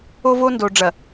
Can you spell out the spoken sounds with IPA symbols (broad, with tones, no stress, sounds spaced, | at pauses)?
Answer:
o˦ v o˦ n d o˨ ɖ͡ʐ ɐ˨